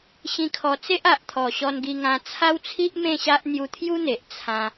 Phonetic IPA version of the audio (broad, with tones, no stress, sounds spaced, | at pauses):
ɕ ĩ˧ kʰ ɔ˧ t͡s e˦ ʔ a˨ ʔ t̪ʰ ɔ˨˩ ɕ ɔ˧ n ɡ i˧ ŋ ã˧ t͡sʰ a˦ w t͡sʰ i˦ ʔ m ẽ˥˧ ɕ a˦ ʔ n̪ j u˧ t̪ʰ j u˦ n̪ e˨ ʔ t͡sʰ ã˧